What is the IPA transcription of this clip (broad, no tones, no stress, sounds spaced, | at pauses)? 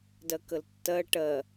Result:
d ɜ k ə l tː ɜ ʈ ɜ